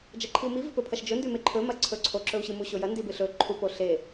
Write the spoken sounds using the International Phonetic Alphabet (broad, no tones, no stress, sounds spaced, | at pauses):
d͡ʒ ɐ ǃʰ i u̯ m i v ɨ p ɵ pʰ ɐ ʃ d͡ʒ ɵ n d ʉ m e ǃʰ ɵ m ɐ ǀʰ ɵ ǀʰ o ǁ ɵ u̯ ɕ ɨ m u ɕ o j ɐ n d i b ɨ ɬ ɵ ǃʰ u p o ɬ e